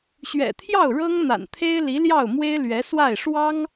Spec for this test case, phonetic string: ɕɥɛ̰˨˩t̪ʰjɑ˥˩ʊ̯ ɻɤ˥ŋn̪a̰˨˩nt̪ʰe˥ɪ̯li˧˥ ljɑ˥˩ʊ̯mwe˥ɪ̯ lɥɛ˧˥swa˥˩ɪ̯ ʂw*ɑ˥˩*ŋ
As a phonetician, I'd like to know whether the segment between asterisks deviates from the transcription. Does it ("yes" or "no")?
yes